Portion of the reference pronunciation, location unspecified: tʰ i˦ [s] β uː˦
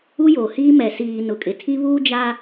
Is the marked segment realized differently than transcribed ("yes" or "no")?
yes